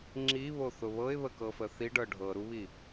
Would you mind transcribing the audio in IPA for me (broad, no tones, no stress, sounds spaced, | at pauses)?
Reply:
ŋ͡ǁ i β o θ ʊ β ɤ ɪ̯ β ə k ɤ f ə θ i ɖ ɤ ɖʱ ɤ ɾ u β i